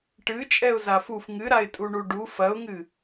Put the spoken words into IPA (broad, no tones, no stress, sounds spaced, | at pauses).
ʈ ɨ t͡ʃʼ ɛ ʊ̯ z a f u f ŋ ɨ ɾ a ɪ̯ tʼ u ɳ u ɖ u f ɐ ʊ̯ ŋ ɨ